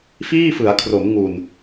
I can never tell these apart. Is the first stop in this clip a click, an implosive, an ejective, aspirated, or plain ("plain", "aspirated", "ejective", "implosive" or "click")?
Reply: aspirated